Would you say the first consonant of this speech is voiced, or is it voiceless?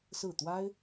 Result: voiceless